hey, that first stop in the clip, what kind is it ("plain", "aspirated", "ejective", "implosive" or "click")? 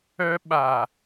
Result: implosive